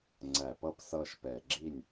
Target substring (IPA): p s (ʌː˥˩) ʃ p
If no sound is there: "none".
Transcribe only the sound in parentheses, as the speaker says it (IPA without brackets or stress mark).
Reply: ʌː˥˩